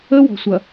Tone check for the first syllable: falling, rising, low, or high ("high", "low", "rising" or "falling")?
high